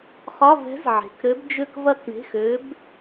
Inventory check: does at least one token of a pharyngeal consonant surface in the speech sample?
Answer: yes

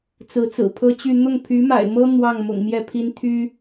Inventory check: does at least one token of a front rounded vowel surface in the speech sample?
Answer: yes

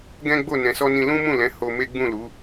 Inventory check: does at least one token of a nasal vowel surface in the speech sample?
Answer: yes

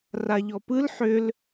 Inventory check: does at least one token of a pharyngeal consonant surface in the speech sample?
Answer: yes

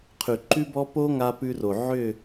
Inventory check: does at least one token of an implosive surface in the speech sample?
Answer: no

